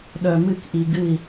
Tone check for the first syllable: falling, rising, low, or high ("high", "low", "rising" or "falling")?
low